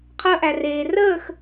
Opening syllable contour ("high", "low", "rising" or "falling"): high